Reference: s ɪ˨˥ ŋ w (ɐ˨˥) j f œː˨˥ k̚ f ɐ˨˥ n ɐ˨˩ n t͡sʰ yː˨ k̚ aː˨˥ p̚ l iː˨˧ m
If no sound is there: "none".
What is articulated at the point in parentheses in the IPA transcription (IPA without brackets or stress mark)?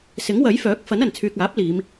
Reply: ɐ˨˥